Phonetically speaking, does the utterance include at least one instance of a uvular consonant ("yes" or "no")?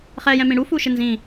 yes